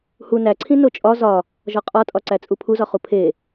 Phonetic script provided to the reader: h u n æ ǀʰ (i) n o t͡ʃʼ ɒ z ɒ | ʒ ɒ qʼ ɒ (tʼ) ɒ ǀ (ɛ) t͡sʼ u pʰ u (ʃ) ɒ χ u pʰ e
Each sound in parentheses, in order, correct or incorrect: incorrect: ĩ, correct, incorrect: æ, incorrect: z

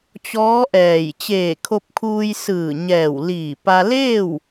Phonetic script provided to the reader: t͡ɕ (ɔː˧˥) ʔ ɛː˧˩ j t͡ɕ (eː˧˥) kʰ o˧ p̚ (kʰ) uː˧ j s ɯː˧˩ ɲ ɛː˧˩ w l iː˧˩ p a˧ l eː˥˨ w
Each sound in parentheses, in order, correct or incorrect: correct, incorrect: eː˧˩, correct

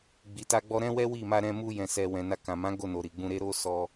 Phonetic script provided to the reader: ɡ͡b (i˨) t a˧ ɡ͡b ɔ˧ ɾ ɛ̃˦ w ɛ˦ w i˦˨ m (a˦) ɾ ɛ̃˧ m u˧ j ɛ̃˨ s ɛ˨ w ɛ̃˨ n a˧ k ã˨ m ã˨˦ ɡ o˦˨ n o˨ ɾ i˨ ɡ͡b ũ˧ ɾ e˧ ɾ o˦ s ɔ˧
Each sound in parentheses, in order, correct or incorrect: correct, incorrect: a˧

